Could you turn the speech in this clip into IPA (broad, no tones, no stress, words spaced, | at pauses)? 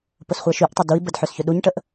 pʊsχʷɛʃyʔtˤʊ dui̯bəd ħøsçʏɗuɲʈəʔ